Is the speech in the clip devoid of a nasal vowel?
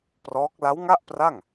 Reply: yes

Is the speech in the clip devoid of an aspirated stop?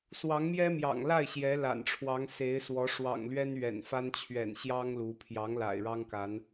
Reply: no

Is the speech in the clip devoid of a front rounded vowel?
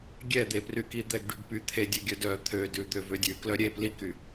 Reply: no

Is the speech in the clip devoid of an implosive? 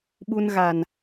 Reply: no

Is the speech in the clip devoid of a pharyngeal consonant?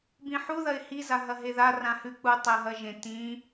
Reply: no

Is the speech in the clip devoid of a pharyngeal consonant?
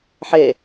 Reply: no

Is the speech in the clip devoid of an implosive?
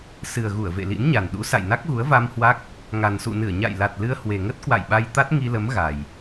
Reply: no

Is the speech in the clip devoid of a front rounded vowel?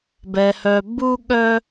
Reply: no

